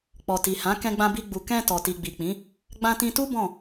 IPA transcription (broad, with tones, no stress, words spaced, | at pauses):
k͡pɔ˨ti˨hã˨˦ kɛ̃˧ɡ͡bã˧bi˧ɡ͡bu˨ kɛ̃˧ tɔ˨ti˨ɡ͡bi˨k͡pĩ˨˦ | ɡ͡bã˧tĩ˧tu˦ bɔ̃˦˨